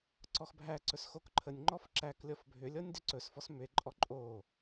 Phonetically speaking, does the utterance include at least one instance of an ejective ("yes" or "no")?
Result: yes